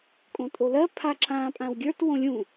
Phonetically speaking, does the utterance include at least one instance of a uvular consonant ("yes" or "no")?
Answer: no